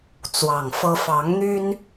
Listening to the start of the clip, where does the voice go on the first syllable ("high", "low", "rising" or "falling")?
low